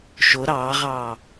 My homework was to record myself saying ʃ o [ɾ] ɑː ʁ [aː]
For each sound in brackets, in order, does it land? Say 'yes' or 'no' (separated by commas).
yes, no